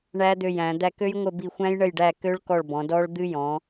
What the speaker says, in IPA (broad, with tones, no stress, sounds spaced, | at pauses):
ɳ æ˦˥ d̪ ø˦˨ j æ̃˨˦ d̪ æ˦˨ k ø˦˥ j ŋʷ ə˦˨ b i˦˨ xʷ æ̃˦˥ j ɳ ə˦˨ j ɖ æ˦˨ k ø˦˥ ɭ k ɔ˦˨ ɭ b ɔ̃˨˦ d ɔ˦˥ ɭ d̪ ɨ˦˥ j ɔ̃˨˦